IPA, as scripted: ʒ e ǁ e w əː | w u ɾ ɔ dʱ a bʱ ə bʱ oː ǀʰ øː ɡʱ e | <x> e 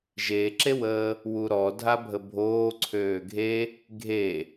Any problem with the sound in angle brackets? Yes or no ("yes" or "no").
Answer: yes